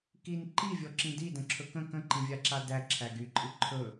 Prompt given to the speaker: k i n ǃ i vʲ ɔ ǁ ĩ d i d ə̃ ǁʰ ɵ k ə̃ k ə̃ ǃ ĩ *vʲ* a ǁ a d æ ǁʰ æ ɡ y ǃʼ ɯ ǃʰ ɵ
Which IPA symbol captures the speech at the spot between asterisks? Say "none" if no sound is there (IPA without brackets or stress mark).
vʲ